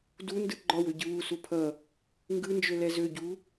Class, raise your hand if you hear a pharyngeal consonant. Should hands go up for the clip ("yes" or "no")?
no